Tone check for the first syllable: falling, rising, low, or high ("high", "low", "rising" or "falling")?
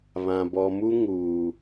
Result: low